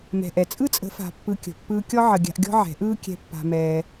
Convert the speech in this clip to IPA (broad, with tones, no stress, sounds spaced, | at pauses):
m ɛ̤˨ ʔ ɛ˨ t͡sʼ ɯ˦ t͡sʼ ə̤˨˦ f a̤˧ pː ɯ˧ kʲ ə̤˨ pː ɯː˧ kʲ ɔ˦ ʕ ə˧ ɡʲ a̤˧ ʔ ɡʲ ɔ̤˦ ʕ ɛ̤˨˦ ʔ ɯː˦ kʲ ɛ̤˧ pː a̤˧ m ɛː˧